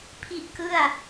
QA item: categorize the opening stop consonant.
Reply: aspirated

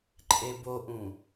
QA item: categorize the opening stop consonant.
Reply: click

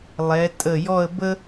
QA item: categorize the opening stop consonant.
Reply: ejective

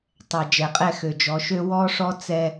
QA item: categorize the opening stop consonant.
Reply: plain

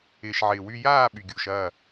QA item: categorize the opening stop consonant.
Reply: implosive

